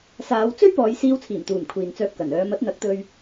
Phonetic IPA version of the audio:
s aː˨˧ w t͡s ɵ˥ ɥ p ɔː˨˧ j s iː˧ w t͡sʰ iː˨˩ m t̪ uː˨˩ m kʷʰ iː˨ n t͡s œː˧ p̚ k ɐ˨˩ n œː˨˧ m ɐ˨˥ t̚ n̪ ɐ˨˥ k̚ t̪ ɵ˧ ɥ

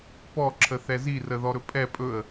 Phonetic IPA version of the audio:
p ɔ ǁʰ ə θ ɛ z i r ə ð ɔ ɾ ɵ pʼ ɛ pʼ ɵ ə̯

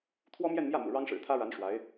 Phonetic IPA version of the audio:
t̪ʰ w ɔ˥ m j ɛ˥˧ n m j ä˥˩ m ṵ˨˩ ɻ ɑ˥ ŋ ʂ ɻ̩˨˩ t̪ʰ ä˥ ɻ a˧˥ n ʂ w a˧˥ ɪ̯

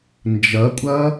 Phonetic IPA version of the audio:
n d͡ʒ ɐ kʷʼ ɐ

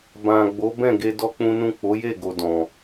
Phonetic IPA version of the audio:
b ã˨ ɡ͡b o˨˦ b ɛ̃˦˨ ɡ e˧ d ɔ˦ k͡p ũ˦ n ũ˦˨ k͡p o˨˦ j e˦˨ ɡ o˨ d ɔ̃˨

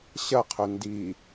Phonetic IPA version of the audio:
ɕ ɐ qʰ ɵ n d i

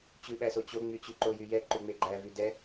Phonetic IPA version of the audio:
t͡ɕ ʉ ɓ æ s o t͡ɕ o ŋ͡m y t͡ɕ ʉ ǃ o j y j ɛ ǃ ʉ ŋ͡m e ɡ͡ǃ æ v y d ɛ

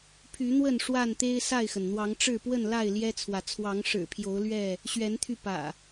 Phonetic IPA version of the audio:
pʰ y˨˦ n̪ w ə˥˨ n ʂ w a˥˨ n t̪ e˦ ɪ̯ s a˥˨ ɪ̯ x ə˩ n n̪ w ɑ˨˦ ŋ ʈ͡ʂ ɻ̩˥˨ p w ə˥˨ n l a˥˨ ɪ̯ l j ɛ˦ t͡sʰ w ä˨ t͡sʰ w ɑ˨˦ ŋ ʂ ɻ̩˨˩ pʰ j o˨˦ ʊ̯ l ɥ ɛ˥˨ | ɕ ɥ ɛ˨˦ n t̪ʰ y˧ p ä̰˨˩

